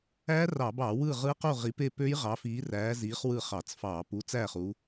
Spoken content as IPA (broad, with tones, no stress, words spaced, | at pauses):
æ˦˥ rɑ˧˩˧bɑ˧˩˧ wɯ˥˨ʁɯ˦˥qu˥˨ ʁi˨˦pe˥˨pø˦˥j ʁɑ˨˦fiː˨˦ræː˨˦ziː˨˦χ wɯ˥˨χɑ˧˩˧t͡sfɑː˧˩˧p u˥˨t͡sæː˥˨χu˨˦